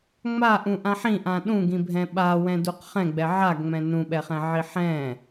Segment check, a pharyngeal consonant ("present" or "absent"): present